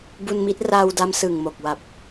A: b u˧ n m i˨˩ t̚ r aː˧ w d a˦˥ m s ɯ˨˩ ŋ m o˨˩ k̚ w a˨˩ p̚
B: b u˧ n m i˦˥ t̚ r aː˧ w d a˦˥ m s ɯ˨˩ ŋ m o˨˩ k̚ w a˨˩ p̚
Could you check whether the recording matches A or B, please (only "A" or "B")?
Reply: B